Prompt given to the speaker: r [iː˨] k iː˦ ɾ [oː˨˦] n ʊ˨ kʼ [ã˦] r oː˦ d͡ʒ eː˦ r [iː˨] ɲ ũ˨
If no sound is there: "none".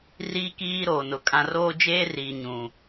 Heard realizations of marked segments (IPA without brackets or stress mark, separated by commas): iː˦, oː˨, ã˦, iː˨